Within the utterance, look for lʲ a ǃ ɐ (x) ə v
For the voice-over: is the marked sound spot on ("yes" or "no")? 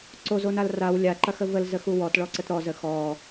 yes